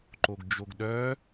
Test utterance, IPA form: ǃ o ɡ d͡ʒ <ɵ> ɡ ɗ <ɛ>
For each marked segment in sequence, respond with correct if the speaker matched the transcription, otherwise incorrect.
incorrect: o, incorrect: œ

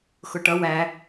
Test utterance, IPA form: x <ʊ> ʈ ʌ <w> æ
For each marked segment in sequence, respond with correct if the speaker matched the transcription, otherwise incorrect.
correct, correct

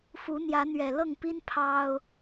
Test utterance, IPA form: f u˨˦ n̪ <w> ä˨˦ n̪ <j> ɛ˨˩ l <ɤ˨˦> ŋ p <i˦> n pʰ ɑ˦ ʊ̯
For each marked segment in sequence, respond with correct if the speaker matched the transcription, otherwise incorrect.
incorrect: j, incorrect: ɥ, incorrect: ɤ˥˨, correct

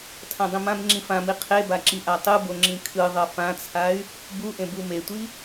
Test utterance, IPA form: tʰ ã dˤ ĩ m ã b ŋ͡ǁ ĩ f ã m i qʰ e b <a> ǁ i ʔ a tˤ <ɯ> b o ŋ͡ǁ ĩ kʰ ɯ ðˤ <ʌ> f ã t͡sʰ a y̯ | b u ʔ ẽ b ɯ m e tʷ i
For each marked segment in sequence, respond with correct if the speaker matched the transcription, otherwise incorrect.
correct, correct, correct

